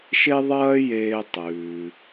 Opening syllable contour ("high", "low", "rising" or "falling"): high